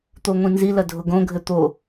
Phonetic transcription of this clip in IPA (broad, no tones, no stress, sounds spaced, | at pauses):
t̪ o ŋʷ ĩ n z i l ɐ dʱ ʊ ɡ õ ɡʱ ɘ t̪ o